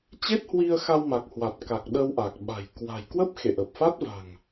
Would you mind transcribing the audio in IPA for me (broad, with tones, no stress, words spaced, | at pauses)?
t͡ɕe˦˥t̚hwi˧ə̯xa˧wma˨˩k̚ hwa˨˩t̚ka˨˩k̚ ɗə˧wʔa˨˩k̚ɓa̤˨˩j kwa̤˨˩j kwə˦˥p̚ xḛ˧˨ʔə˨˩p̚fa˦˥t̚va̤˨˩ŋ